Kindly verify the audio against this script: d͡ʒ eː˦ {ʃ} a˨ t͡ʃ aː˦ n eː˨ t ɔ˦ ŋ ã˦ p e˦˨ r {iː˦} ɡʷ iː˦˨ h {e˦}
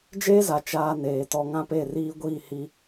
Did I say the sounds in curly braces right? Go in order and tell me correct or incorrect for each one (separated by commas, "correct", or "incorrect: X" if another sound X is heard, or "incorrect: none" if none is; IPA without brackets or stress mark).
incorrect: z, correct, incorrect: i˦